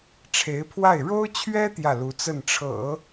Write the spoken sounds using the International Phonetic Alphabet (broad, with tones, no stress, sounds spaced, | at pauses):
ʈ͡ʂʰ e˧˥ ɪ̯ pʰ w a˥˩ ɪ̯ ɻ o˥ ʊ̯ t͡ɕʰ ɥ ɛ˥ t̪ j ä˥˩ l u˧˥ t͡s ə˥˩ n ʈ͡ʂʰ ɤ̰˨˩˦